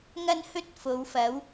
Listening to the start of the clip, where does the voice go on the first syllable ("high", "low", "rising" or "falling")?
high